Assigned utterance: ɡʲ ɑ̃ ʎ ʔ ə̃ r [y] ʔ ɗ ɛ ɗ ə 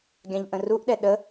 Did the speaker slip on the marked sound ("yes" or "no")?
yes